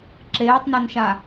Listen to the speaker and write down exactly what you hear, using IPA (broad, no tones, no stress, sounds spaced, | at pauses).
ǁ eː tˤ n ɒ n ʃ a